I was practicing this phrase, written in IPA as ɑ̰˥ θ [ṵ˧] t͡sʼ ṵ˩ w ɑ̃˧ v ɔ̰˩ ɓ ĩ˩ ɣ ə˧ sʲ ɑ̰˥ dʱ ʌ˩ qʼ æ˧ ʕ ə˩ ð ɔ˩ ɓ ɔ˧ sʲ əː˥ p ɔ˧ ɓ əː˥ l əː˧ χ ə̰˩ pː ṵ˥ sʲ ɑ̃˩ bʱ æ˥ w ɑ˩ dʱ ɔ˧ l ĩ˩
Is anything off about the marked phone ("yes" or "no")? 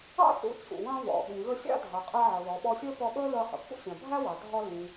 no